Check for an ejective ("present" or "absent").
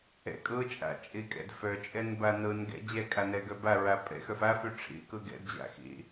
present